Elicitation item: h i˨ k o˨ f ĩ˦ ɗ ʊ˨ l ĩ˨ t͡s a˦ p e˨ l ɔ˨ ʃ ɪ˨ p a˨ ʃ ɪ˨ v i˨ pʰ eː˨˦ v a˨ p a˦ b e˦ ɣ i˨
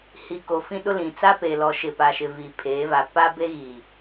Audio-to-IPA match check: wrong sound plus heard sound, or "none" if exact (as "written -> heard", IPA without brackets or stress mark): ʊ˨ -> ʊ˦